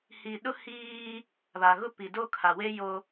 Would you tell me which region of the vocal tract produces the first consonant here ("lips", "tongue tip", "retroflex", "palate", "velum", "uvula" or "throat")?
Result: throat